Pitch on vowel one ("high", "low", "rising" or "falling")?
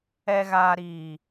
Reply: low